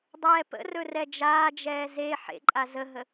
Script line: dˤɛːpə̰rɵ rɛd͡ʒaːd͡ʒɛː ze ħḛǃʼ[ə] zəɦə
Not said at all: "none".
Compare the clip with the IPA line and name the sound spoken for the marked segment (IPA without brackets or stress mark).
a